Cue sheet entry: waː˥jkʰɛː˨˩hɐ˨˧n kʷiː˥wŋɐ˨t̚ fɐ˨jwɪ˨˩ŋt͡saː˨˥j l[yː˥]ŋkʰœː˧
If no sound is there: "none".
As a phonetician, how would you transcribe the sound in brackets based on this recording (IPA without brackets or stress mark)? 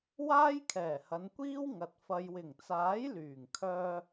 yː˨˩